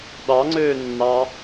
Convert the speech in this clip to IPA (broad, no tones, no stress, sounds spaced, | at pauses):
ɗ ɑ ŋ͡ǀ øː nː ɑ